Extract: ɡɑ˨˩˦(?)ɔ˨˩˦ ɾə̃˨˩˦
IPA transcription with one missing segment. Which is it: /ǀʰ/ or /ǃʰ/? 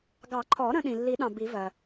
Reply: ǃʰ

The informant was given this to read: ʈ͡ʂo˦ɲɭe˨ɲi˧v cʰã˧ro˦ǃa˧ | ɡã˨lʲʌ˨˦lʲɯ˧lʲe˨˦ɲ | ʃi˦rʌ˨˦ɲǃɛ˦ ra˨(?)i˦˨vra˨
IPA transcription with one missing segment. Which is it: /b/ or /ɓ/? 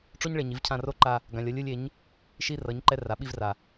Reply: ɓ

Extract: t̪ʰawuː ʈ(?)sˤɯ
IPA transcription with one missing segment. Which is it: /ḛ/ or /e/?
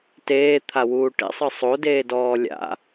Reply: ḛ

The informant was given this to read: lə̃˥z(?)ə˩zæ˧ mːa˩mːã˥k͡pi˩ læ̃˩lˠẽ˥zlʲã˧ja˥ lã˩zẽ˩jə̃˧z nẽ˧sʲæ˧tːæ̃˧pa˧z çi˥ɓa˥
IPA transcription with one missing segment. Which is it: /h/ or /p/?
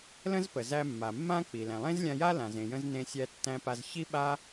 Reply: p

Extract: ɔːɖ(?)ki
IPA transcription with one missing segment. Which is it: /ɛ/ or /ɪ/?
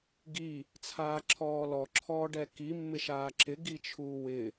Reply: ɛ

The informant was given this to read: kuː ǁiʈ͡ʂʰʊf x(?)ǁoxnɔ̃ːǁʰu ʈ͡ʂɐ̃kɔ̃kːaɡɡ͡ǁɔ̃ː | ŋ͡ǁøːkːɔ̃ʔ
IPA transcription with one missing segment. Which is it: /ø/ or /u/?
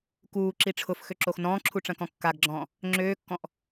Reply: ø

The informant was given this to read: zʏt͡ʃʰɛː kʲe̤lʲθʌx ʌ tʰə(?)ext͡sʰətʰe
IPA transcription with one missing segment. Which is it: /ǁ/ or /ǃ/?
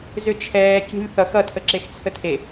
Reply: ǁ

